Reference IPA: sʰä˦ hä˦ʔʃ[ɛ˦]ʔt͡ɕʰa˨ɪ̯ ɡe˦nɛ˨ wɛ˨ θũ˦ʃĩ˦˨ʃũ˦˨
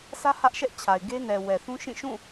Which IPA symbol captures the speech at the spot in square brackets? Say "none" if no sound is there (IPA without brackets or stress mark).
ɛ˦